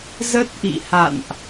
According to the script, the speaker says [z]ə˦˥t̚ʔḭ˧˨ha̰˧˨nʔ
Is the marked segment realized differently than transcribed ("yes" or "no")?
no